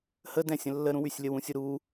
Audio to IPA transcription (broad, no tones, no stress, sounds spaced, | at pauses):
h ə d ɛ̃ sʲ ə̃ lː ə ɾ ũ w y sʲ lʲ ə w ũ sʲ u ɾ u